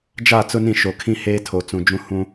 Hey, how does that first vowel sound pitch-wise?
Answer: falling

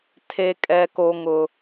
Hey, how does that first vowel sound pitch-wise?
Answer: high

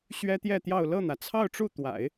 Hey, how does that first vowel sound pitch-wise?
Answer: high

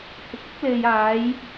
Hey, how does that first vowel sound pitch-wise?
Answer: rising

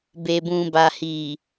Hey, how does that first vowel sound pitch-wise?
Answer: low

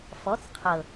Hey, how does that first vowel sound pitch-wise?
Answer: rising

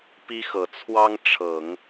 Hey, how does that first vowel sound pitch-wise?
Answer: high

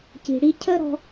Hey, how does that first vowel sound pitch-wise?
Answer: low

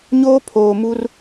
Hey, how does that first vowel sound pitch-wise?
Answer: high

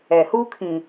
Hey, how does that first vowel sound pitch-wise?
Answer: low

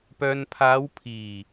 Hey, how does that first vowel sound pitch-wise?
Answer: low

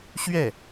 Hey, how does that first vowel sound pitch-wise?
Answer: falling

